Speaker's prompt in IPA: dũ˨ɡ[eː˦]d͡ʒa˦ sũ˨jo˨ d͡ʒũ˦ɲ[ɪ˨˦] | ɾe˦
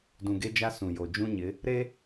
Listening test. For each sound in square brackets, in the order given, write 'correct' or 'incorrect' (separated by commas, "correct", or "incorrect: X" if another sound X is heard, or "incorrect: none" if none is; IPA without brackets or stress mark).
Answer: incorrect: e˦, correct